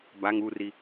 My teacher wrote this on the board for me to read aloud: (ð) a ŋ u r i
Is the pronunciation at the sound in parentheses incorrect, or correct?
incorrect